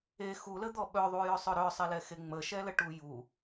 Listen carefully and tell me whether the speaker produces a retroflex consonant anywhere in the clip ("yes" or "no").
yes